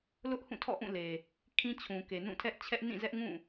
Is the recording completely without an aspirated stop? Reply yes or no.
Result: no